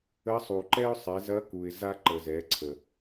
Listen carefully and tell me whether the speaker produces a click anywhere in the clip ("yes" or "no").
yes